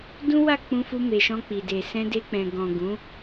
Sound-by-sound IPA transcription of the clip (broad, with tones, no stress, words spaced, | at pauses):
dũ˦wa˦˨ k͡pũ˧ fu˧me˨ʃɔ̃˧ k͡pi˨de˨ sɛ̃˧de˧k͡pɛ̃˨ɡɔ̃˨ ɡũ˨˦